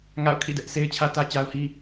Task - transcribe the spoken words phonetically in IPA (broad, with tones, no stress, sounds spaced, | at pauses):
ŋ a̰˦˨ ʊ̯ kʰ ḭ˦˨ d ɛ˦ ʔ s e˦ ɪ̯ t͡ɕʰ ä˦ t ä˦ t͡ɕ a˦ ʊ̯ h i˦